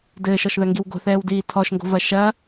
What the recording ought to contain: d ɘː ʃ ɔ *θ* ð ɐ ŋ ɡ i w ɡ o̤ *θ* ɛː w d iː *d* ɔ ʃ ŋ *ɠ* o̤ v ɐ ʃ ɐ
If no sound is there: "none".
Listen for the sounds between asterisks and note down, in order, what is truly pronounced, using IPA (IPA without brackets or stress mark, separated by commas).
ʃ, θ, tʰ, ɡ